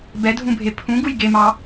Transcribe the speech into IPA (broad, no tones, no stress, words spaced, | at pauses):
bɛdʱũbʱe pʰũɡuj ɡemɑ